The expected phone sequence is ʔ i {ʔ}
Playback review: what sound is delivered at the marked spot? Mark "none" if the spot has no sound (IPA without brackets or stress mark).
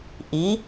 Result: none